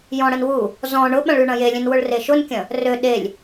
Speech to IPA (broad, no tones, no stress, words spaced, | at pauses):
jɔ̃ɽənwu | zɔ̃ ɳʊɓɐ̃ɭy ɳɐ̃jelʲẽn wʊɭreʃʊnkʲɐ̃ | rø ɗelʲ